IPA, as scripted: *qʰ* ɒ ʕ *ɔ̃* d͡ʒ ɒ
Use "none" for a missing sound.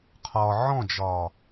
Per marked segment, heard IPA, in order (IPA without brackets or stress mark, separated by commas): qʰ, ɔ̃